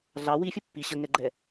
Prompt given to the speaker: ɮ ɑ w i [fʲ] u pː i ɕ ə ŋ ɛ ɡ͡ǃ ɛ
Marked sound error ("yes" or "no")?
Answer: no